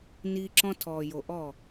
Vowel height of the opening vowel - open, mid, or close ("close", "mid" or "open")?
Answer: close